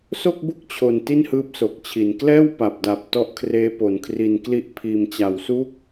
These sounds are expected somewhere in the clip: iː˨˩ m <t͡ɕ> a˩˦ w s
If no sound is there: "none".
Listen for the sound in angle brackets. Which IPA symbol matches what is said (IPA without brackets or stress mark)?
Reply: t͡ɕ